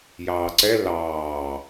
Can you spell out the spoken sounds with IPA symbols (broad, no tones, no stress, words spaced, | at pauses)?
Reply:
jɑːǀɛ lɑː